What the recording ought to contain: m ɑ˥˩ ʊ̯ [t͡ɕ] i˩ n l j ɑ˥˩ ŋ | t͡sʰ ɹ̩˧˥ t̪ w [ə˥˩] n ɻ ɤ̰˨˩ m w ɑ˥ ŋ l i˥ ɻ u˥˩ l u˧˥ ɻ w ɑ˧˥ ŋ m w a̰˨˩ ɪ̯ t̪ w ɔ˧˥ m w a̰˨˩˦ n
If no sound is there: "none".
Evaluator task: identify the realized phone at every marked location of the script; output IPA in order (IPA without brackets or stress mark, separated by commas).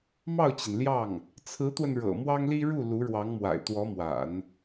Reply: t͡ɕ, ə˧